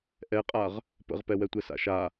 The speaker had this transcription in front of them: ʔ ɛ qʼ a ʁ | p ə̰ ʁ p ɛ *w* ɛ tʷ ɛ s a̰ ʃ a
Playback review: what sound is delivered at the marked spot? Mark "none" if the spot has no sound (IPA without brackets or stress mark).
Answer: w